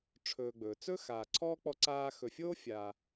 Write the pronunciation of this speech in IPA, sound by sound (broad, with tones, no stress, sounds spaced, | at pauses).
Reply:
ʈ͡ʂʰ ɵː˨ ɡ͡b ɵː˩ t͡s ɵ˥ x aː˨ ǀʰ ɔː˥ k͡p ɔ˦ ǀ aː˦ x ɵ˨ fʲ oː˥ fʲ aː˨